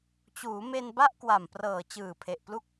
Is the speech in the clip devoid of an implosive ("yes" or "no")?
yes